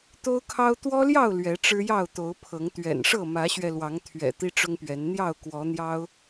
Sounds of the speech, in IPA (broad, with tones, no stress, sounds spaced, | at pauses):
t̪ o˦ ʊ̯ kʰ ɑ˦ ʊ̯ t̪ w ɔ˦ l j ɑ˥˨ ʊ̯ l ɥ ɛ˨˦ ʈ͡ʂ ɻ̩˦ j ɑ˥˨ ʊ̯ t̪ o˨˦ ʊ̯ pʰ ɤ˨˦ ŋ t̪ ɥ ɛ̰˨˩ n ʂ ɤ˥˨ m ä˨˦ ɕ ɥ ɛ˧ l w ɑ˨˦ ŋ t̪ʰ ɥ ɛ̰˨˩ t̪ i˦ ʈ͡ʂ ʊ˦ ŋ p ɥ ɛ˨˦ n n̪ j ɑ˥˨ ʊ̯ k w ɔ˨˦ n̪ j ɑ˦ ʊ̯